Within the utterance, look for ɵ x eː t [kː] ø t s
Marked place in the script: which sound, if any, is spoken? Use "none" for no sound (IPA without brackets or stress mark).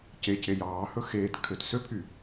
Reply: kʰ